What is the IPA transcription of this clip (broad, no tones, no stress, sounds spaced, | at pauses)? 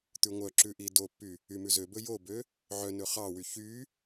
t̪ ʉ ŋʷ œ ǁ ʉ ʔ i d o pː y | y m ʉ z ø b ɵ j o b ø | ʕ œ n ɵ χ ɑ w y ç y